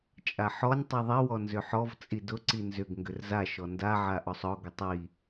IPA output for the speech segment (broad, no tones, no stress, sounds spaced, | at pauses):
t͡ʃʼ a ħ ɔ nʲ tˤ i ðˤ i w ɔ n z ʏ ħ ɔ v t͡sʼ i d ʊ ǀ i n z ʏ ɡ ŋ ɡ ʏ r z a ʃ ɔ n d a ʕ a ʔ ɔ sˤ ɔ ɡ ʏ tˤ i